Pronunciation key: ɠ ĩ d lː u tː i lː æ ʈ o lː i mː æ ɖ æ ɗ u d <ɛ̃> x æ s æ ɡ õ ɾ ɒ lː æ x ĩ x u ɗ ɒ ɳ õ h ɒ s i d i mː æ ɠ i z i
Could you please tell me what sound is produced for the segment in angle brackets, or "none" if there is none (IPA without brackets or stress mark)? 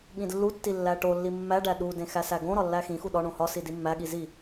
ẽ